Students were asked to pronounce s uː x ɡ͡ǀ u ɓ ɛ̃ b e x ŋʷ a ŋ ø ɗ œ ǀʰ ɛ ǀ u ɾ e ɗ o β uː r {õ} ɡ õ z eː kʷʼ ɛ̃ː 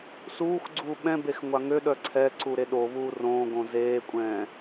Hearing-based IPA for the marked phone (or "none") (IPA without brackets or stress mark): õː